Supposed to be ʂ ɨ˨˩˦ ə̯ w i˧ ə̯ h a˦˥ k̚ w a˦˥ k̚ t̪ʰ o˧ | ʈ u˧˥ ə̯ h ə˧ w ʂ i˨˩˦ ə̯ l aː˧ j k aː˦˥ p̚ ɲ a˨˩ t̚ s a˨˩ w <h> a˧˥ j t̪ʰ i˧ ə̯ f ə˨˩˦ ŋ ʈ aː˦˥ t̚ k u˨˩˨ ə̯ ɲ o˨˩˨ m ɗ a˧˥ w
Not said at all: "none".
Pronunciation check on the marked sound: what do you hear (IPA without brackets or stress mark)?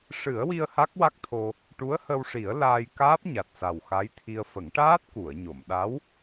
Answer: x